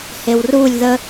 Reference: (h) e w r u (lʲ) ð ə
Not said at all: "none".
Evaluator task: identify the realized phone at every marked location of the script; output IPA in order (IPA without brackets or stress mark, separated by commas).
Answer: h, lʲ